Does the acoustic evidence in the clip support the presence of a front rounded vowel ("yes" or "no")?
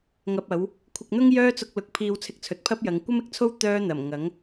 yes